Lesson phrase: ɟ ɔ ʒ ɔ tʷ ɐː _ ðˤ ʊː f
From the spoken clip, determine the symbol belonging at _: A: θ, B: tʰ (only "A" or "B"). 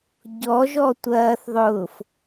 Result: A